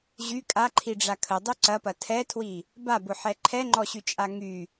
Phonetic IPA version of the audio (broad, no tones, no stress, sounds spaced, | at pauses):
ʑ y kʼ a ǃʰ i ɖ͡ʐ a kʰ ə dˤ u ǀ ɐ p ɐ tʰ ɛ tʰ w i | b a b ʊ ħ ɛ ǃʰ ɛ ŋ͡ǃ ɔ ɕ y t͡ʃʼ a ŋ y